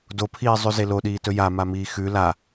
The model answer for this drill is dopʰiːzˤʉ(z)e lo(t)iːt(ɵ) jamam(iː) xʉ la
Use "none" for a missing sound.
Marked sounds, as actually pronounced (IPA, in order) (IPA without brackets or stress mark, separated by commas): z, ɗ, ɵ, iː